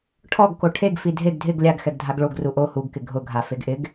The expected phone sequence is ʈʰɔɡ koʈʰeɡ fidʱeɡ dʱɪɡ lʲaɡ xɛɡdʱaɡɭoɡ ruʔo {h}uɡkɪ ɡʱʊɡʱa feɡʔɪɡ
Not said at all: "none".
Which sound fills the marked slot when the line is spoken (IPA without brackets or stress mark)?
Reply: h